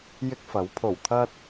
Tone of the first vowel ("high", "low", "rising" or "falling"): high